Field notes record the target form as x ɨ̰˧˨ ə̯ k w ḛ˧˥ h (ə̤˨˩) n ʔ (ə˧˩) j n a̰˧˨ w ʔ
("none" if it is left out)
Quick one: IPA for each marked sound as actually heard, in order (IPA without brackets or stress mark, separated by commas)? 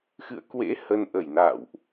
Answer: ə˧, ə˧˩